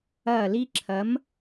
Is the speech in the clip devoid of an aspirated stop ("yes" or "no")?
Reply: no